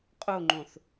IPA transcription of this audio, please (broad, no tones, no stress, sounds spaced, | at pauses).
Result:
qʼ o ŋ͡ǃ õ θ